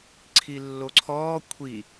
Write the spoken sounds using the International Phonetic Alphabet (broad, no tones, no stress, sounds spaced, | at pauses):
ǀʰ i lː o ǀʰ ɔː kʷʰ i